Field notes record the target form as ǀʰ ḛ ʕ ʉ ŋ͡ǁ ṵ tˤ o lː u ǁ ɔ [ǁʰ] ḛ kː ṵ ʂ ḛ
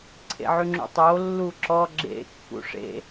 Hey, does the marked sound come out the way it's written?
no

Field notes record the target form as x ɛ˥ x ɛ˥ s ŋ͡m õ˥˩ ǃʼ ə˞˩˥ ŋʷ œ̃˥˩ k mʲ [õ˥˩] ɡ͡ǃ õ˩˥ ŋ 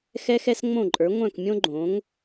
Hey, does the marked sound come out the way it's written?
no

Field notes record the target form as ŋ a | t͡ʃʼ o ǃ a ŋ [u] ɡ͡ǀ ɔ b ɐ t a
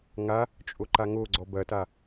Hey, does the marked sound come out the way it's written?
no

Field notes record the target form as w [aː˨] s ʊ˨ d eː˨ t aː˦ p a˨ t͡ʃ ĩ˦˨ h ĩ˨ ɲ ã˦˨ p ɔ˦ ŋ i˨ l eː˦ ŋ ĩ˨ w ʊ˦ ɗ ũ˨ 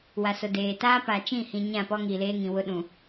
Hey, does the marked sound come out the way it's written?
no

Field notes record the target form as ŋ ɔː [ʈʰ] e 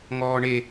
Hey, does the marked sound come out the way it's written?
no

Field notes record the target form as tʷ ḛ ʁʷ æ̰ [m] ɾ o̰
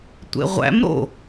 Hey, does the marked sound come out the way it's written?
yes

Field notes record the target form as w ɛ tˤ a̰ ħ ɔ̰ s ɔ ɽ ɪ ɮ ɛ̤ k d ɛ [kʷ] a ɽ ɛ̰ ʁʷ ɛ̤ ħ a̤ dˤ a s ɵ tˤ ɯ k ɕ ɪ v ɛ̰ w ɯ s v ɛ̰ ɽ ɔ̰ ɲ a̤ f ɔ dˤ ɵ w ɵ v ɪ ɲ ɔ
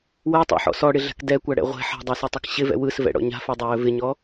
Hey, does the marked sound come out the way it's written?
yes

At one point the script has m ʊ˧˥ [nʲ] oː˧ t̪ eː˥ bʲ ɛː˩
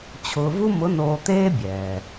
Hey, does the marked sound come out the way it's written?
no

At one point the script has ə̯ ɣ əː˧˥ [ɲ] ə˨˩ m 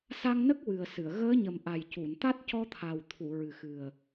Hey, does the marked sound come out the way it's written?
yes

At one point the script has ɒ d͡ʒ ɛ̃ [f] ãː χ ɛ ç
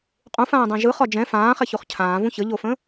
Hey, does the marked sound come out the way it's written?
yes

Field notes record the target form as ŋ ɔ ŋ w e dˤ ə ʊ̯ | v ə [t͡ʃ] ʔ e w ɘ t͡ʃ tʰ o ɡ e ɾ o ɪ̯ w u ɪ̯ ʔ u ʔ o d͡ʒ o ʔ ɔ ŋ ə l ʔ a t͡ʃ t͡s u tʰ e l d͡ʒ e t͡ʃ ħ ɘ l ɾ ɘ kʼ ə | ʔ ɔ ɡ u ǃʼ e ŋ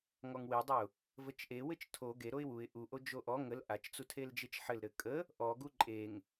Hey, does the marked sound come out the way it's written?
yes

